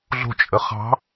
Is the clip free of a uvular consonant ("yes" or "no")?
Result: no